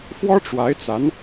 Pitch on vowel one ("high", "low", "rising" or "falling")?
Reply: high